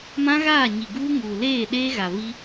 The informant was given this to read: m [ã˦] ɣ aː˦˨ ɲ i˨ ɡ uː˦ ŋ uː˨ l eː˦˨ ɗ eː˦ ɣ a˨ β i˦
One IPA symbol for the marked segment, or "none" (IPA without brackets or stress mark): ã˦